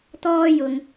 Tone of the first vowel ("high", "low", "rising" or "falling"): high